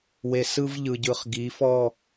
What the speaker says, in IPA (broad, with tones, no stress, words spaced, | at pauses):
we˨sɯ˦vʎɯ˨ɟɯ˨χ ɡi˨˦fɔ˦˨